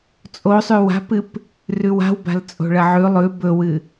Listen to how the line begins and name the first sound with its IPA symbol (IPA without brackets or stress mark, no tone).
t͡sʼ